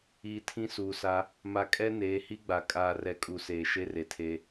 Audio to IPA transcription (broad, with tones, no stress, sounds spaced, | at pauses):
iː˨ tʰ ĩ˦ s uː˨ s a˦ | m a˨ kʼ ɛ˦ n eː˨˦ h i˦ ɡ͡b a˨ kʼ aː˨ r ɛ˨ kʼ u˨ s eː˨ ʃ e˦ r e˨ tʰ e˦